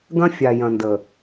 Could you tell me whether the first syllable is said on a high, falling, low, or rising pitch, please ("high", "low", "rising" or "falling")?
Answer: high